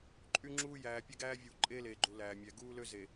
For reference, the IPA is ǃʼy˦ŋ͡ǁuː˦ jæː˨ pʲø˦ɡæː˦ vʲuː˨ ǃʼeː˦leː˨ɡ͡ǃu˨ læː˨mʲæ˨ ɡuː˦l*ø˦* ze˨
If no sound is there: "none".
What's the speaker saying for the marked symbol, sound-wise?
ø˦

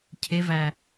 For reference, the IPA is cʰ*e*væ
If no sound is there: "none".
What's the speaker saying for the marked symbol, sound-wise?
e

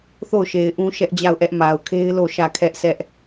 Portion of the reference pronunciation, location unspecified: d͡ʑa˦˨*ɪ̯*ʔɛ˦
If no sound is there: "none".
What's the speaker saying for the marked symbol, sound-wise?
ʊ̯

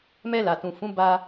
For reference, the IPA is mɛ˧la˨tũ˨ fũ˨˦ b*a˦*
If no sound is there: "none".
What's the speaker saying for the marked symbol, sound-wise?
a˧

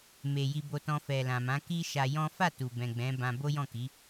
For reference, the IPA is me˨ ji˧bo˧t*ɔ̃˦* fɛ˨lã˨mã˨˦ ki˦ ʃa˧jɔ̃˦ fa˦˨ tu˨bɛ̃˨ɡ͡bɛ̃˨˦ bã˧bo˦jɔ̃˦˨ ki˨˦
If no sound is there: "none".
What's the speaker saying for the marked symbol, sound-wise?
ɔ̃˧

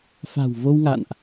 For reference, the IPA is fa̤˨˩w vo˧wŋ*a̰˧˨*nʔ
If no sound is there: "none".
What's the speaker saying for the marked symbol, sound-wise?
a̰˧˨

